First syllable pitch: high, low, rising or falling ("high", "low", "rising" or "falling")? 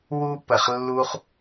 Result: high